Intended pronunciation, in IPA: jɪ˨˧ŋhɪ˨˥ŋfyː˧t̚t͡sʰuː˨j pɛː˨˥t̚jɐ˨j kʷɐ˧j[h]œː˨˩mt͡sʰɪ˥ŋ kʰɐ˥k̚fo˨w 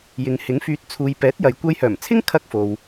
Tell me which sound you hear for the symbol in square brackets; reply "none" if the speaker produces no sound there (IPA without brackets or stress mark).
h